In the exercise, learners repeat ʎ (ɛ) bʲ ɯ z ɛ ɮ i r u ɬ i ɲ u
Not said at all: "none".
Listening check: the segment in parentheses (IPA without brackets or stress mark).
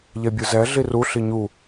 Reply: ɛ